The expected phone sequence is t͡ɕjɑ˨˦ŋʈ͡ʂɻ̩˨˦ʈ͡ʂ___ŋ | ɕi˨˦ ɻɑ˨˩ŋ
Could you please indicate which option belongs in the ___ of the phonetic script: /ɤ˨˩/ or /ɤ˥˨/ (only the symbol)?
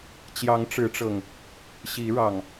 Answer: ɤ˨˩